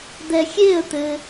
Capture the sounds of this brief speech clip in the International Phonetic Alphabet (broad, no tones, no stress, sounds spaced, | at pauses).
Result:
d̪ ɛ xʲ e ə̯ t̪ ɘ